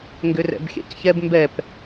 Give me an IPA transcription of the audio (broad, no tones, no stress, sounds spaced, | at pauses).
ŋ ɡ ʏ r ɛ̰ b xʲ ɛ̰ c ç ɛ b m b ɛ p